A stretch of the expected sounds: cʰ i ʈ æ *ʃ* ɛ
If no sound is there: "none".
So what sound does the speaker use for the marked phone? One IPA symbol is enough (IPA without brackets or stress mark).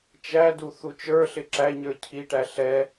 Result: ɬ